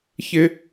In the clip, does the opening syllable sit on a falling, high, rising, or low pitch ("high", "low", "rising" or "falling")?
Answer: low